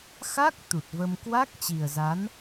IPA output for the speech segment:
x a˦˥ k̚ t̪ u˨˩ t̚ v ə˧ m k w a˦˥ k̚ t͡ɕ i˨˩ ə̯ z a˨˦ n

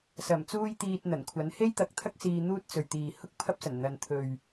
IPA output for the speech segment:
s ɐ˨˩ m t͡s uː˧ j t̪ iː˨ t̚ n̪ ɐ˨˩ n kʷʰ ɐ˨˥ n h e˥ j t̪ ɐ˨˥ k̚ t̪ʰ ɐ˥ k̚ s iː˧ n̪ uː˥ t̚ t͡s ɵ˨ ɥ t̪ iː˨ h ʊ˥ k̚ pʰ ɐ˥ p̚ s ɐ˨˩ n n̪ ɐ˨ n t̪ʰ ɵ˨ ɥ

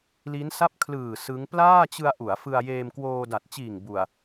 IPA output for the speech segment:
l i˦˥ n s a˥˩ p̚ kʰ l ɯː˨˩ s ɯ˦˥ ŋ p l aː˥˩ t͡ɕ ɯ˧ a̯ ʔ u˩˦ a̯ f ɯ˧ a̯ j eː˧ m k w oː˧ d a˨˩ t̚ t͡ɕ iː˨˩ ŋ b u˨˩ a̯

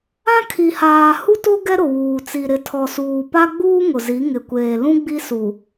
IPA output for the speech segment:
ã˦ kʰ i˨ h aː˨ h u˦ t o˦ ɡ ɛ˦ ɾ ʊ˨ w uː˨ t͡s i˨ ɾ ɪ˨ tʰ ɔ˨ s uː˨ p a˦ ɡ͡b uː˦ ŋ ʊ˨ z i˨˦ ŋ ɪ˨ kʷ eː˨ l ũ˦ ɡ͡b i˦ s u˨

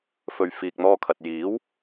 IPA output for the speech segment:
f ɵ˨ ɥ f iː˨ k̚ n̪ ɔː˧ kʰ ɐ˨ t̚ j iː˨˥ w

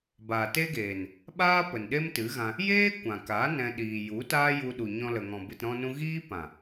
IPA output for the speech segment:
b aː˨ t e˦ ɡ eː˨ n | ɓ aː˦ p ə˨ n ɗ e˦ m t ɨ˨˦ ɣ ã˧ | j eː˦ kʷ ã˨ k a˨˦ n ɛ̃˧ ɗ iː˨ j u˨˦ t aː˦ j u˧ ɗ u˨ ɲ ɔ̃˧ l ə˨ ŋ ɔ̃˨ b ɨ˨ t ɾ ɔ̃˧ n ũ˧ ɣ iː˦ p ã˨

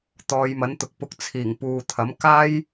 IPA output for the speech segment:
t̪ ɔː˨˧ j m ɐ˨˥ n t̪ ʊ˨˥ k̚ p ʊ˨ k̚ t͡sʰ iː˨˩ ŋ p uː˨ t̪ʰ ɐ˨˥ m k aː˥ j

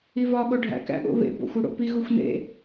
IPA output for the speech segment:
i v ɒ ɠ o ɖʱ æ̰ k æ̰ ɠ o̰ β ḛ b o̰ xʷ u ɽ o̰ p i ɣ u xʷ n ḛ

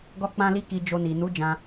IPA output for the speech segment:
ɡ ɔ˦ k͡p ã˦ l i˦ k i˧ d͡ʒ o˧ n i˨ n u˨˦ d͡ʒ ã˦

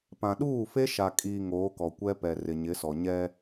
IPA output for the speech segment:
p ã˨ ɗ uː˦˨ f e˦ ʃ a˨ kʼ iː˨ ŋ oː˨˦ k ɔ˨ kʷ ɛ˦ p ɛ˨ r ɪ˨ ɲ ɪ˨˦ s ɔ˨ ɲ ɛ˦

